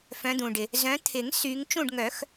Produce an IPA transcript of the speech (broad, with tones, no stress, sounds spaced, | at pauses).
f œ̃˨˦ d̪ ũ˩ ɖ ɪ˩ | z œ̃˨˦ t̪ʰ ɪ˨˩˦ ŋ s y˨˦ ŋ t͡ʃ ũ˦˨ ɖ ŋ œ˨˩˦ x